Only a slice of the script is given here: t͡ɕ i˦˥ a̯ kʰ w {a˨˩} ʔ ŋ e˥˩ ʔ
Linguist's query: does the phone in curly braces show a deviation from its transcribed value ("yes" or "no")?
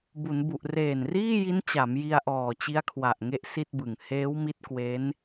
no